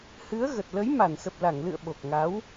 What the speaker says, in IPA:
hɨ˨˦ə̯ɣə˨˩t̚ lə˨˦j ma˧˩nsə˨˩p̚la˧˩ŋlɨ̰˧˨ə̯ ɓo˨˩k̚ŋaː˨˦w

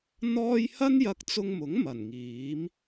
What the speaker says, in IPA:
n̪ɔː˥j hɐ˥njɐ˧k̚ t͡sʊ˧ŋmʊ˨˥ŋ mɐ˨˩nŋiː˨˥m

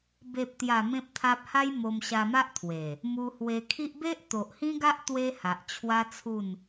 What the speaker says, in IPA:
be˨p̚t̪ja˨˩ mẽ˦p̚t̪ʰa˦p̚ ha˦jmo˧m ɕa˧ma˦ʔt̪ʰwe˨˩ | mu˧hwe˧kʰi˦ʔ be˦ʔt̪o˨ʔhĩ˦ɡa˦ʔ t̪we˦ha˨ʔt͡ɕʰwa˦t͡sʰu˥˧n

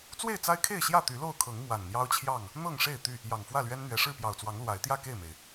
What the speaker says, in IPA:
t͡swe˥˨ɪ̯t͡sa˦ɪ̯kʰe˥˨ɪ̯ɕjä˥˨ t̪y˨˦lo˥˨ʊ̯kʰɤ˨˦ŋ mwa˨˩nn̪jɑ˦ʊ̯t͡ɕʰjɑ˥˨ŋ | n̪ɤ˥˨ŋʂe˥˨ɪ̯ t̪y˥˨ | jɑ˨˩ŋfwä˥˨lɥɛ˦n n̪ɥɛ˨˩ʂɻ̩˥˨pjɑ˨˩ʊ̯t͡swɑ˨˦ŋ lwa˨˦ɪ̯t̪jä˥˨ke˥˨ɪ̯me˩ɪ̯

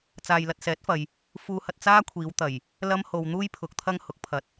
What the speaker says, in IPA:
t͡saː˨jlɐ˨t̚ sɛː˨˥t̚fɐ˨j | fuː˧hɐ˧t̚ t͡saː˥kʷʰiː˨˧wt̪ɐ˨˩j | lɐ˥mho˧wn̪uː˥j pʰʊ˨˥k̚t̪ʰɐ˥ŋhʊ˨˥k̚ pʰɐ˨t̚

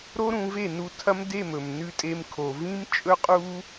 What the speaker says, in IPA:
ɾo˦ɾũ˧ve˦˨nu˧ tʰɐ˦mde˦˨mɵ˨m nʉ˧tʼe˧mkʰo˨vĩ˦m t͡ʃʼɵ˦qʼu˦

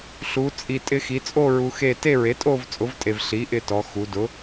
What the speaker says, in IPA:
ɬu˩˧t͡sʼi˨˩ tʼɪ˧xi˩˧t͡sʼo˥˧ ɹu˧xe˥˧ te˥˧ɹe˩˥tʼo˥˧v t͡sʼʊ˩˥vtʼe˨˩v ɬi˩˥ʔɪ˧tɔ˩˧ xu˩˧dʊ˩˥

